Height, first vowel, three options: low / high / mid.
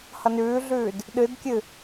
mid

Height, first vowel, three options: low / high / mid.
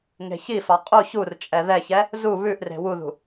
mid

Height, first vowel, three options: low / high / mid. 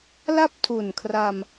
low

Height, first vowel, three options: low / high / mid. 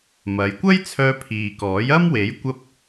low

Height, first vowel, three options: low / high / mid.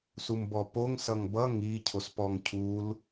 high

